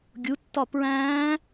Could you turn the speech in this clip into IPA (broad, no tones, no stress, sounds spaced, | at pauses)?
ɡʲ u tː ɒ p ɹ æ̃ː